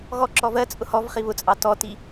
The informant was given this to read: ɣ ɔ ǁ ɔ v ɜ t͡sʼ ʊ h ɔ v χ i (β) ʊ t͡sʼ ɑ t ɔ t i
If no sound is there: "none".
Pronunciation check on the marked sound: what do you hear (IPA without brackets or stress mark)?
β